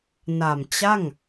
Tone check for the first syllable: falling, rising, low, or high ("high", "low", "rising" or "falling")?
low